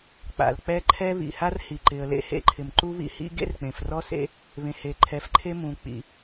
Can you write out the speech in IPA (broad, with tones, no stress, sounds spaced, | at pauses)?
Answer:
k͡p a̰˩ l k͡p ɛ˦ ǃʰ ɛ˦ β ḭ˩ h a˦ r h i˩ ǃ ɪ˩ ə̯ l ḛ˦ h ḛ˦ ǃʰ ɪ˩ m ǃ u˦ β ḭ˦ h ḭ˦ ɡ ḛ˦ r k͡p ẽ˩ f r ɔ˦ s ḛ˦ | β ẽ˩ h e˩ ǃʰ ɛ˩ f ǃʰ e˦ m ũ˩ k͡p ḭ˩